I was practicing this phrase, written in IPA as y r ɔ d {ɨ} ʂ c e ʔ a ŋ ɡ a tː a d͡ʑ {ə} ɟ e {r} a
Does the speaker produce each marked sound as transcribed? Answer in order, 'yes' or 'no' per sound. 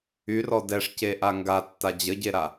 no, yes, no

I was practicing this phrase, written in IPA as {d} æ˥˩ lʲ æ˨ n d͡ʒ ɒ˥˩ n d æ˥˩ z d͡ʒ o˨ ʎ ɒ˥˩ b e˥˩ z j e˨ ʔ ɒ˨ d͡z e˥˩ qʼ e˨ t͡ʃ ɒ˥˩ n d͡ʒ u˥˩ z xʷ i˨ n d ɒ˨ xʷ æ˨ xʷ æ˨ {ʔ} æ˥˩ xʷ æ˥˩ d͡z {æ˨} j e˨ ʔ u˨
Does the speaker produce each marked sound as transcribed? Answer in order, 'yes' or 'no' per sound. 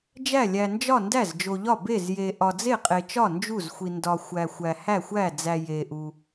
no, no, yes

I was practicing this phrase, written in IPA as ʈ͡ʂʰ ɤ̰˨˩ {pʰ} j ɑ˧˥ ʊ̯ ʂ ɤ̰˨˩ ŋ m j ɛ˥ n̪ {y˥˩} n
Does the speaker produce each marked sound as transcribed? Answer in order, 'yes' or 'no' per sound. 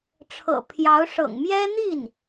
yes, no

